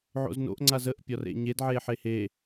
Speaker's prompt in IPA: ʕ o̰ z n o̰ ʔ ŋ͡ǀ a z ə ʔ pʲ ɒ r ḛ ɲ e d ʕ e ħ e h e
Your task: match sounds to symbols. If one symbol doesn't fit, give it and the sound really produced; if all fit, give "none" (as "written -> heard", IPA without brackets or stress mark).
none